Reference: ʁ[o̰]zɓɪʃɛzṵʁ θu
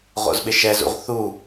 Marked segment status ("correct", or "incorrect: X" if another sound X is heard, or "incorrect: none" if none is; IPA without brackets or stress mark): correct